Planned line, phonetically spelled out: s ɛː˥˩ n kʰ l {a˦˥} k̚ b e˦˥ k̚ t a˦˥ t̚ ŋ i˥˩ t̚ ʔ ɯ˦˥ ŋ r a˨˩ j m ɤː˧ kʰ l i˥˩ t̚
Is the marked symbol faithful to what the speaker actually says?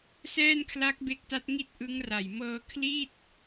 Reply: yes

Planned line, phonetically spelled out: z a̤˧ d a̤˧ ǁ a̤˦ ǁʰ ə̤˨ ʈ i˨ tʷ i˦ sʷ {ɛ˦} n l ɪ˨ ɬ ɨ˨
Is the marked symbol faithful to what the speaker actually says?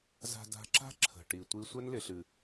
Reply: yes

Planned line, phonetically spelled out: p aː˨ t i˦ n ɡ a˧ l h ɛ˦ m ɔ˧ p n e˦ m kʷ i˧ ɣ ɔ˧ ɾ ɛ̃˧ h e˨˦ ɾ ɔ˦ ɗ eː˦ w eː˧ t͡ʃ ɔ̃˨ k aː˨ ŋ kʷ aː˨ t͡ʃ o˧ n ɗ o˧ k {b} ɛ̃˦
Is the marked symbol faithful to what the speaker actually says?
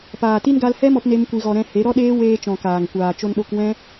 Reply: no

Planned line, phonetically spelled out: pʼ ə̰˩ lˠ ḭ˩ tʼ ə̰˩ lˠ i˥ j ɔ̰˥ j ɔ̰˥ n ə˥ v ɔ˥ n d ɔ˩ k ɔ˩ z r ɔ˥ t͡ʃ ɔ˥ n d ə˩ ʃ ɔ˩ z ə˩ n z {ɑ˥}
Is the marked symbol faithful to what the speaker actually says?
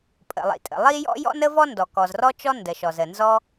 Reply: no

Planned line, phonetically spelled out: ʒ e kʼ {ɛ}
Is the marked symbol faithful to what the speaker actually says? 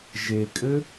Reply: no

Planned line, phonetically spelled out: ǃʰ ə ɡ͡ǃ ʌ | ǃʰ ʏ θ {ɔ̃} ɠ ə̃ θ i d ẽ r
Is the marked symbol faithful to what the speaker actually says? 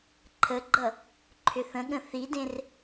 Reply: no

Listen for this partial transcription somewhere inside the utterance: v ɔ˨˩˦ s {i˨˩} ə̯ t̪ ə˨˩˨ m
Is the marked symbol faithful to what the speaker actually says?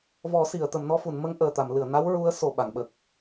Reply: no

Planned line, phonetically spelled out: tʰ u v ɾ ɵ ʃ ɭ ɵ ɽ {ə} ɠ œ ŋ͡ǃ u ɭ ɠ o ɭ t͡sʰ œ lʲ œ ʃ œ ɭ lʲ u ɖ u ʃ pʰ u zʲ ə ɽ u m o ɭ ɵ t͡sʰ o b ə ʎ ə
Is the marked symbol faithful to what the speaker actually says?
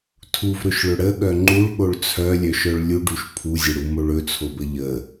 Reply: yes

